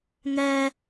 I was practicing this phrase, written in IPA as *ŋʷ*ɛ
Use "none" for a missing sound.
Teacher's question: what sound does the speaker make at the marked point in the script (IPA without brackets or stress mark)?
ŋ